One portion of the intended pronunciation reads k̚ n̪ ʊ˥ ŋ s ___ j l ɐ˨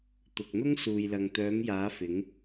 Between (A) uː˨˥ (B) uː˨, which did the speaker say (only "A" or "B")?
B